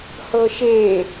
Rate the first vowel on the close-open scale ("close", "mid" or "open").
mid